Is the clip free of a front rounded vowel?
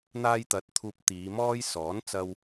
yes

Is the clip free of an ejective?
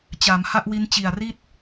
yes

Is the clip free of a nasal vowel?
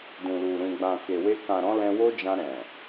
no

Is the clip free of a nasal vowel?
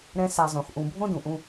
no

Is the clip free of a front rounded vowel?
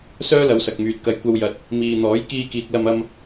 no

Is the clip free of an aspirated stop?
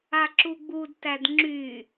yes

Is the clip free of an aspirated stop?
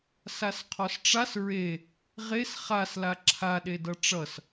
no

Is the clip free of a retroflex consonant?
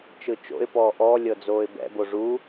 no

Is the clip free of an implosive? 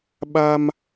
no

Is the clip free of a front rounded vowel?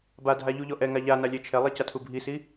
yes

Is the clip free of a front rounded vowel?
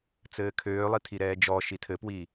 no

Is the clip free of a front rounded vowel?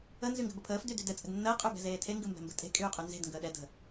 no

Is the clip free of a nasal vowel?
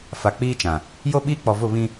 no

